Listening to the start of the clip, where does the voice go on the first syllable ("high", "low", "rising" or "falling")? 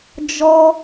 high